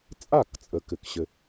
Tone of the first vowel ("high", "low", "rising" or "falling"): falling